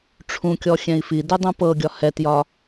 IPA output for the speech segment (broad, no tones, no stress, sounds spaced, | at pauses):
ʈ͡ʂʰ ũ kʲ ɔ xʲ ɛ̃ i̯ f i d u dˤ ũ p ɤ ɡʲ ɒ h ɛ t j ɒ